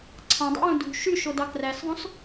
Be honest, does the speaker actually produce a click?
yes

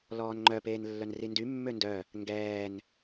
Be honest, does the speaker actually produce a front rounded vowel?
yes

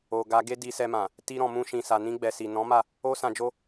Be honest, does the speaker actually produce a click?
no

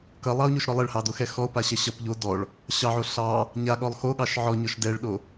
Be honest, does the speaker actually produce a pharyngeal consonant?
yes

